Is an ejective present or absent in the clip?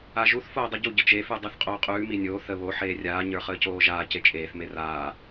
present